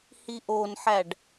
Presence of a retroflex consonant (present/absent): present